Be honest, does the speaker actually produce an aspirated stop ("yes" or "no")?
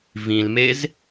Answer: no